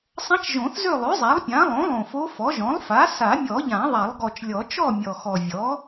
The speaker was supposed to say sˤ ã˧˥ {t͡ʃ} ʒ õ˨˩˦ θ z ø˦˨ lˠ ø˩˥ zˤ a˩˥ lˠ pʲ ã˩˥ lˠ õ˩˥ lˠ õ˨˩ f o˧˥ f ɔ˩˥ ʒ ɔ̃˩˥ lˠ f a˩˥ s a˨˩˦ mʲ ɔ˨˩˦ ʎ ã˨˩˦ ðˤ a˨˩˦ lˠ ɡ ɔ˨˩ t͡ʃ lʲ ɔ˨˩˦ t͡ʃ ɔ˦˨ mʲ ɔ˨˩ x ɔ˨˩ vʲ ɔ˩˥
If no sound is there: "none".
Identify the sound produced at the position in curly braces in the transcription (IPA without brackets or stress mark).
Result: t͡ʃ